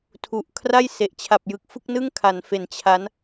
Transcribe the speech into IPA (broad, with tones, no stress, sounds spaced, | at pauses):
tʰ u˨˩ ʔ kʰ r a˥˩ j s e˨˩ ʔ t͡ɕʰ a˨˩ p̚ j ɯ˨˩ k̚ f ɯ˥˩ k̚ n ɯ˥˩ ŋ kʰ a˩˦ n f e˩˦ n t͡ɕʰ a˦˥ n